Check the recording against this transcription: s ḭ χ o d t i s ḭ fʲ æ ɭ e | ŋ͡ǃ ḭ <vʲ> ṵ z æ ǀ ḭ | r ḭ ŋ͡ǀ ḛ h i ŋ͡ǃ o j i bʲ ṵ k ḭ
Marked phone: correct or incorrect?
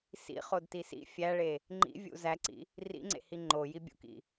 correct